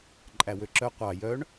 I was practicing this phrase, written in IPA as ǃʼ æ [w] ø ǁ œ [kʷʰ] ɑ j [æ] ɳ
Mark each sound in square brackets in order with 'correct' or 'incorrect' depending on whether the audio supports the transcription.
correct, incorrect: qʷ, incorrect: œ

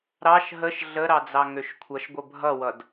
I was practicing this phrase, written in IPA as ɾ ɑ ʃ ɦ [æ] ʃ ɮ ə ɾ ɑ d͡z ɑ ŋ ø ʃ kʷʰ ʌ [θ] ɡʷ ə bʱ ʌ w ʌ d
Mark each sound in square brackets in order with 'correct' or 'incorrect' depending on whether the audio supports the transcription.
incorrect: ə, incorrect: ʃ

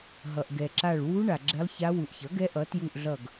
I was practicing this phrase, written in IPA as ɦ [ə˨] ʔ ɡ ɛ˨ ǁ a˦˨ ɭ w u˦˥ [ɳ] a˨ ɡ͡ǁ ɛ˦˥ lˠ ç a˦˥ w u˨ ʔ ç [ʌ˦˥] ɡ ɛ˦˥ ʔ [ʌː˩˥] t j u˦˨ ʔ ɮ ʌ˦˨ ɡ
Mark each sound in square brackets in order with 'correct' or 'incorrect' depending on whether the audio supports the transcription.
incorrect: ʌ˨, correct, incorrect: ʌ˩˥, incorrect: ʌ˩˥

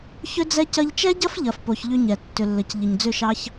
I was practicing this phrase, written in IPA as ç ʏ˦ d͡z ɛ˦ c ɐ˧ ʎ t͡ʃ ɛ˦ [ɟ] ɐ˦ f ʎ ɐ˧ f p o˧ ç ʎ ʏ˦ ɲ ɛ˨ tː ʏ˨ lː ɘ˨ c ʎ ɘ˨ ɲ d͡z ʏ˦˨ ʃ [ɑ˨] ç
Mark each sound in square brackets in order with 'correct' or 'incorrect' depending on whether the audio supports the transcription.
correct, incorrect: ɑ˦

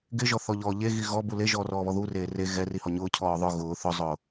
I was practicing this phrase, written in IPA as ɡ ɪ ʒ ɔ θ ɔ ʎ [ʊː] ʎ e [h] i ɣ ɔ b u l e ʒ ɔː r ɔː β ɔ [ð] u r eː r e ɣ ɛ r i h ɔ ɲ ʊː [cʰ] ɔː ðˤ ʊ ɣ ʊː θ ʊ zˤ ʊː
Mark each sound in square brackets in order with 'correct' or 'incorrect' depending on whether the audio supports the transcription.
incorrect: ɔː, incorrect: ɣ, correct, correct

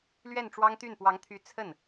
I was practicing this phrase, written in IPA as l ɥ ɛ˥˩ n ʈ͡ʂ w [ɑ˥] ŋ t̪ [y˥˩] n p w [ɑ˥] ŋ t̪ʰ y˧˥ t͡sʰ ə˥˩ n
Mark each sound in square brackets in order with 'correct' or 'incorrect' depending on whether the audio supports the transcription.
correct, correct, incorrect: ɑ˧˥

